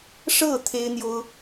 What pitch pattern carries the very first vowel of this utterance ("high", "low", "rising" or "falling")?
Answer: falling